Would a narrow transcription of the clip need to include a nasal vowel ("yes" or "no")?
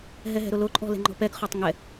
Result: no